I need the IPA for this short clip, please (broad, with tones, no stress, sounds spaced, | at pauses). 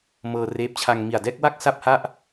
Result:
m ɤː˧ r eː˦˥ p̚ t͡ɕʰ a˧ ŋ m i˨˩ a̯ d ɛː˥˩ k̚ w a˥˩ k̚ s a˥˩ p̚ h a˥˩ ʔ